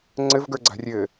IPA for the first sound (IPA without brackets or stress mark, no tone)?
ŋ͡ǀ